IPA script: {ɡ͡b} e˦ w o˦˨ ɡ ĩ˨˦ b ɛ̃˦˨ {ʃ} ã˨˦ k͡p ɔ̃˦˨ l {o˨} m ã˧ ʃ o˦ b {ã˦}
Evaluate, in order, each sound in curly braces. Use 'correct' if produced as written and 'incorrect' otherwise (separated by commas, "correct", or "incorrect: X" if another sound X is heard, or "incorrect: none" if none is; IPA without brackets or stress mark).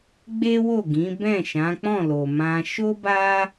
correct, correct, correct, incorrect: a˦